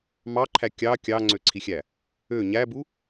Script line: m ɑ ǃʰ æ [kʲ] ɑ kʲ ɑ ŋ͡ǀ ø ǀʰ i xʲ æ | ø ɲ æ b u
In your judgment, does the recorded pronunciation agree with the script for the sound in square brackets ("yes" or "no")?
yes